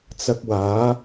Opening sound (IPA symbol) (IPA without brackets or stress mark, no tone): t͡s